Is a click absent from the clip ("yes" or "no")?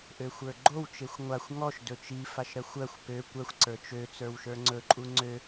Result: no